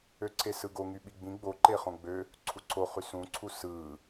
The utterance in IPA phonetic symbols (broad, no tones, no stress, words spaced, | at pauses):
øǀʰesɯɡo ŋyɓiɡ͡bĩ ɡ͡bo ǃeχõɡ͡bø | ǀʰuǀʰo χysũǀʰu sɯ